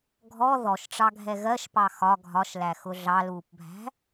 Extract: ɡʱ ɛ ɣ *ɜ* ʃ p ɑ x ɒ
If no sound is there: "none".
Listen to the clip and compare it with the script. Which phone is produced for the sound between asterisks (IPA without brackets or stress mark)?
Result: ɜ